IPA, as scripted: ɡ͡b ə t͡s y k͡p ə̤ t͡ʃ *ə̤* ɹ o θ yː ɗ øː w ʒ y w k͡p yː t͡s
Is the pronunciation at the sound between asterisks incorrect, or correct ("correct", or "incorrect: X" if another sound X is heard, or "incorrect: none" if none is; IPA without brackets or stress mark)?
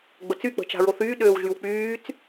incorrect: a̤